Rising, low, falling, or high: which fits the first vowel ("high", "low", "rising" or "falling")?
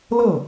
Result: falling